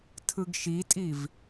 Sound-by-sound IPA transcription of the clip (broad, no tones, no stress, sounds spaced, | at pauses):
tʰ ɯ ɡ ʃ i tʼ i v